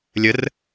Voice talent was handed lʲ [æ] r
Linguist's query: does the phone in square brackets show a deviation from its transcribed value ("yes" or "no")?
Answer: yes